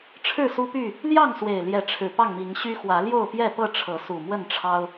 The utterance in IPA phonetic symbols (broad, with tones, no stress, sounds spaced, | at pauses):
ʈ͡ʂʰ ɻ̩˥˨ s u˦ p y˥˨ | l j ɑ˥˨ ŋ s w e˨˩ ɪ̯ l j ɛ˨˦ ʈ͡ʂʰ ɻ̩˨˩ p ɑ˥˨ ŋ m i˨˦ ŋ ɕ y˦ x w ä˨˦ l j o˥˨ ʊ̯ p j ɛ˥˨ p ɤ˥˨ ʈ͡ʂʰ ɤ˨˦ s u˨˩ m w ə˥˨ n ʈ͡ʂʰ ɑ˦ ʊ̯